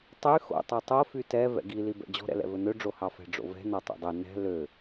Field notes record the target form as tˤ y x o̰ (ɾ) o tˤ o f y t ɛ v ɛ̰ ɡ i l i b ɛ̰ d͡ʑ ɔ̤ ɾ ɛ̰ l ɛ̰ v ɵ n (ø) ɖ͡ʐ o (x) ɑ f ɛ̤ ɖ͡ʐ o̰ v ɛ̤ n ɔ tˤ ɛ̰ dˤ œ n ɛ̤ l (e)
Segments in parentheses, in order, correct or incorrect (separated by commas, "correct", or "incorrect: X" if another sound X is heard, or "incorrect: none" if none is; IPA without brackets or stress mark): incorrect: tˤ, correct, incorrect: h, incorrect: ø